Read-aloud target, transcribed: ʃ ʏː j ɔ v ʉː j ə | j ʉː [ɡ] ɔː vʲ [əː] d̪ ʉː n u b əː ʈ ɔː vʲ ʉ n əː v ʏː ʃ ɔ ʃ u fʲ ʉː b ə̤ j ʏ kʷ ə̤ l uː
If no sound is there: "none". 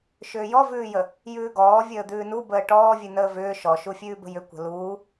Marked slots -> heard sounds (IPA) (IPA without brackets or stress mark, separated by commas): ɡ, əː